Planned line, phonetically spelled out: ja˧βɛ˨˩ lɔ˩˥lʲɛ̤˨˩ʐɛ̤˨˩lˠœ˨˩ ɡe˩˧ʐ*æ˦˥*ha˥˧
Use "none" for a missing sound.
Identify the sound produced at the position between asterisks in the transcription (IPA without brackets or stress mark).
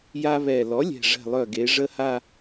ə˦˥